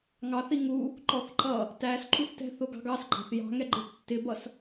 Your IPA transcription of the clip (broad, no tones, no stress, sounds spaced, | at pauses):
ŋ ɑ θ i ŋ u | ǃ ɔ θ ǃ ʌ | t æ s ǃ u θ t ɛ̤ θ ʊ ɡ ɑ̤ ɡ ɑ s ɡ͡ǃ ɑ̤ θ j ɑ̤ ŋ ɛ ɡ͡ǃ ɪ tː ɪ b ʌ s